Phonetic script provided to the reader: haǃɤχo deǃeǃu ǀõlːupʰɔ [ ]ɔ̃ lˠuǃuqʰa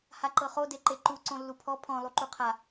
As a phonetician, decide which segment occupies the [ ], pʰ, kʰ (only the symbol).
pʰ